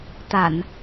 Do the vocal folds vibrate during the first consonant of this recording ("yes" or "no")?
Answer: no